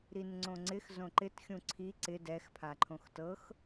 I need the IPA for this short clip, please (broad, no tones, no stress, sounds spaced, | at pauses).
ɾ i n ŋ͡ǀ õ ŋ͡ǀ ɪ x z õ ǃ ɪ t xʲ ũ ǀʰ i ǀ ɪ d ɛ x pʰ a ǃʰ õ x t ɤ x